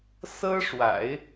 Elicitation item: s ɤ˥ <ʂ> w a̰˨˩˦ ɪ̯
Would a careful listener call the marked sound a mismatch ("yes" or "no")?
no